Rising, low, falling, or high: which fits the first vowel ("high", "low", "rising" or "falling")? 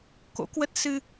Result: rising